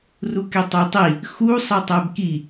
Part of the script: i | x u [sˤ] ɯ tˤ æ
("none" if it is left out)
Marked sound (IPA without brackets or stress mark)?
sˤ